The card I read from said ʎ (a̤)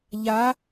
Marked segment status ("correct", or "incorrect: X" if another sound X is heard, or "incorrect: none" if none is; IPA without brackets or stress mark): incorrect: a